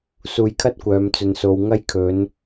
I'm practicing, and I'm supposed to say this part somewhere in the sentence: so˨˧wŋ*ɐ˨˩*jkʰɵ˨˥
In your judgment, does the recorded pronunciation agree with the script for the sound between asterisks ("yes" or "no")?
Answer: no